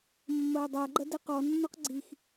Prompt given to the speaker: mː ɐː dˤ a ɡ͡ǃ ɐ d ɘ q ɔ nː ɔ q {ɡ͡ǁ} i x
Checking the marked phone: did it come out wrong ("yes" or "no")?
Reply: yes